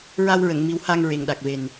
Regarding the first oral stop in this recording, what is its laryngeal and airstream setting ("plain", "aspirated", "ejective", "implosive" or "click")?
implosive